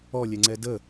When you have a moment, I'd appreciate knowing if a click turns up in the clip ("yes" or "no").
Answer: yes